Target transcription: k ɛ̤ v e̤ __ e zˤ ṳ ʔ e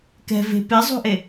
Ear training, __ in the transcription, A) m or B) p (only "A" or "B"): B